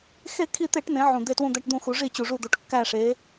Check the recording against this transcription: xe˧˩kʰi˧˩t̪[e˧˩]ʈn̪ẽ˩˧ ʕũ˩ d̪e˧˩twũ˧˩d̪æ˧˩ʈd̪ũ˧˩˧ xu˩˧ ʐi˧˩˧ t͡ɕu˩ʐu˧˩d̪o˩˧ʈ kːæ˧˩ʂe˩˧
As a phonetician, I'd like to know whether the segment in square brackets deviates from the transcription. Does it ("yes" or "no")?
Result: yes